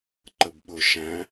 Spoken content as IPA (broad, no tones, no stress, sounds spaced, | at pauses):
ǃ ə b ɓ ʊ ʃ æ̃